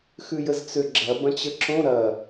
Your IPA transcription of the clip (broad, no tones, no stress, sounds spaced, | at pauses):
x ʉ j ə z t͡s ø ɡ͡ǁ ɐ b ɐ̃ t͡ɕ ə ǁ õ ɾ ɐ